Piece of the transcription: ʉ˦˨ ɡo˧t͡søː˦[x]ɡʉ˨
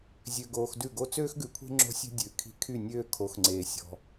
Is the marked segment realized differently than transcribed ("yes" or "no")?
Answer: no